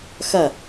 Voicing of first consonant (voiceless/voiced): voiceless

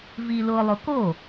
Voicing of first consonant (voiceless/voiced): voiced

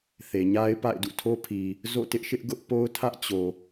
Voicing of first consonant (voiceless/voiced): voiceless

